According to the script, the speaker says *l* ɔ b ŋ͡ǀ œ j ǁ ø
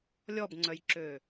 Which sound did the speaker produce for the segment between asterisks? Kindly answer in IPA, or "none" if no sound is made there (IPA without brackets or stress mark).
lʲ